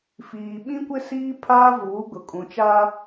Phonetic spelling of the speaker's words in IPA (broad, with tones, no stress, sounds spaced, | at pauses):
f iː˨ ɓ ĩ˦ kʷ ɪ˦ s iː˦ pʰ aː˦ v uː˨˦ ɡ ʊ˨ kʼ ũ˨ t͡ʃ a˦